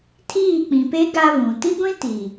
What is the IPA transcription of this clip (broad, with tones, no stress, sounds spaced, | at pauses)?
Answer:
tʰ iː˦˨ k͡p ĩ˨ p e˦ ɡ a˦ β ũ˨ t i˦ ɡʷ ĩ˦ t i˨